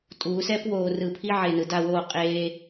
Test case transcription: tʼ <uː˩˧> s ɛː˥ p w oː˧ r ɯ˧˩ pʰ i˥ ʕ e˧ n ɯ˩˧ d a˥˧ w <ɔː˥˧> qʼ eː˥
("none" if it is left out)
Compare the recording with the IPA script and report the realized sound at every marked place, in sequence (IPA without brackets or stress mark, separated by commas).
uː˩˧, oː˥˧